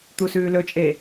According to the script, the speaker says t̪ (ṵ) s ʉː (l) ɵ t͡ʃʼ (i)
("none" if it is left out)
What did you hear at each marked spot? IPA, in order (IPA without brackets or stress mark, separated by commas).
u, l, e